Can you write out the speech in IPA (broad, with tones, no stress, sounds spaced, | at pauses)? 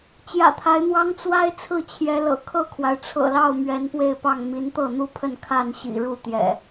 t͡ɕ j ä̰˨˩ t̪ʰ a˨˦ ɪ̯ n̪ w ɑ˦ ŋ t͡s w a˦ ɪ̯ t͡sʰ ɹ̩˥˨ t͡ɕʰ j ɛ˨˦ l ɤ̰˨˩ kʰ ɤ˥˨ kʰ w a˩ ɪ̯ ʈ͡ʂʰ ɤ̰˨˩ l ɑ˥˨ ʊ̯ m ɥ ɛ˨˦ n p w e˥˨ ɪ̯ p ɑ˥˨ ŋ m i˨˦ n t̪ ɤ˥˨ n̪ u˥˨ pʰ ə˥˨ n kʰ a˥˨ n ɕ ḭ˨˩ ɻ u˥˨ t̪ j ɛ̰˨˩